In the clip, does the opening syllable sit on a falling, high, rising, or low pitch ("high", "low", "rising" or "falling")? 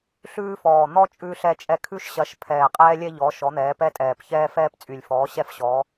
high